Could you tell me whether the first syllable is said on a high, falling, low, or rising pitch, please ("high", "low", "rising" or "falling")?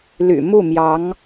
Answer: low